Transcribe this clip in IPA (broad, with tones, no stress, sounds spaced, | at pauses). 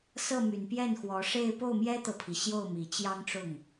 s ɤ˥˩ m y˨˩ n p j ɛ˥˩ n x w ɔ˧˥ ʂ e˥˧ ɪ̯ p o˥˩ ʊ̯ m j ɛ˥ t̪ ɤ˨ pʰ i˩ ɕ j o˥˩ ʊ̯ m i˨˩ t͡ɕ j ɑ˥ ŋ ʈ͡ʂ ʊ˥˩ ŋ